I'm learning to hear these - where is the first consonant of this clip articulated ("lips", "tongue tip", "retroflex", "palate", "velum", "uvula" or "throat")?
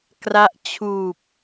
velum